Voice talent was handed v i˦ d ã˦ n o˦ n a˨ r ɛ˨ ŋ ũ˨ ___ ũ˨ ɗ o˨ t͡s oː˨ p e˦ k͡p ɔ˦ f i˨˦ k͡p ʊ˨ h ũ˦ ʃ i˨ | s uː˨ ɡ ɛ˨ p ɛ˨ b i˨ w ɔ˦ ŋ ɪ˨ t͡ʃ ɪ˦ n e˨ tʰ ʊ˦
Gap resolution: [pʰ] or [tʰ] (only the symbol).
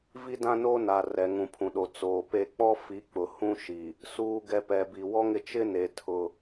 pʰ